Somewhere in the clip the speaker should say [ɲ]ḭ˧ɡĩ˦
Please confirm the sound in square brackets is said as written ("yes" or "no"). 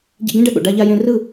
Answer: no